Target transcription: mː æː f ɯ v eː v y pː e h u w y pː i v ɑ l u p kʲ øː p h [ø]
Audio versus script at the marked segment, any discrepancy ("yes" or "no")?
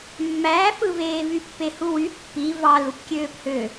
no